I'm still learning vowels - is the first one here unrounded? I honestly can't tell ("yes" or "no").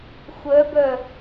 no